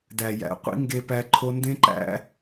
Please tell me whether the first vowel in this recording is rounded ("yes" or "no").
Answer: no